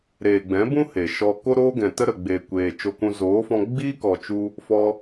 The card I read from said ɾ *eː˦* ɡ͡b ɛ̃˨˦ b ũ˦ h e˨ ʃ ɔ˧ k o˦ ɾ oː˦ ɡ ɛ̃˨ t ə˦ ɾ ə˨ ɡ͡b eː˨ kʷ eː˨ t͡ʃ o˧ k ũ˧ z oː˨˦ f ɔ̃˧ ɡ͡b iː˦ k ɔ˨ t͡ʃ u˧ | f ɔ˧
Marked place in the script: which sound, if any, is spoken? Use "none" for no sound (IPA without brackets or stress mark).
eː˨